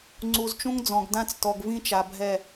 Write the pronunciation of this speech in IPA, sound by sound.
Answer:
ŋ͡ǀ u˨ z t͡ʃ ũ˦ ŋ d͡z ɔ̃˨ ɡ d ã˦ t͡s t ɔ˨ ɡ v ĩ˦ t͡ʃ a˨ bʱ ɛ˦˨

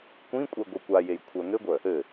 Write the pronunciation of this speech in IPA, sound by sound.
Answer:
kʷ ĩ kʷʼ e ɡʷ ɘ kʷ a j e j kʷʰ œ ŋ ɘ ɡʷ œ | ɘ

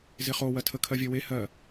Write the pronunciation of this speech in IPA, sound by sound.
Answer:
z ɪ χ o w ɜ tʰ ə kʰ ɜ vʲ ɜ w e h ɜ

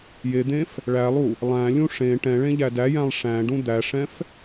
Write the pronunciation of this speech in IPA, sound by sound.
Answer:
j e d̪ ẽ f | ɭ æ lˠ u | lˠ æ̃ lʲ ũ ʂ ẽ ʈ ɛ̃ ɭ ẽ ʎ æ d æ j æ̃ lˠ ʂ æ̃ ɖ ũ d̪ æ ʂ ɛ̃ f

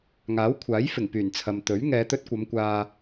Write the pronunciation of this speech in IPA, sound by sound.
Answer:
ŋ aː˨˥ w kʷʰ aː˨˥ j f ɪ˨˩ ŋ p yː˨˩ n t͡sʰ ɐ˨ m t̪ ɵ˨˥ ɥ ŋ ɛː˨˧ t̪ ɵ˧ t̚ kʷ ɐ˨˧ m kʷ aː˨

